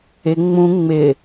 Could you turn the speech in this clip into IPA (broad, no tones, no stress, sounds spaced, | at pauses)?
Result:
ɪ ŋ͡m ũ ŋ͡m ɪ